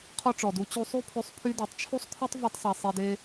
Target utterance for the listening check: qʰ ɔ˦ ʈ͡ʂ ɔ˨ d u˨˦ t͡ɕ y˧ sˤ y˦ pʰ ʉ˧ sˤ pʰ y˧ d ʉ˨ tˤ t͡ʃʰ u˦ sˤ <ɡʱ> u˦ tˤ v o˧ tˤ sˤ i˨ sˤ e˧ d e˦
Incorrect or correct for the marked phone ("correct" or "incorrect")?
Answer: incorrect